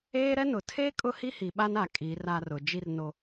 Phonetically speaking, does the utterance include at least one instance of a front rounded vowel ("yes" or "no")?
no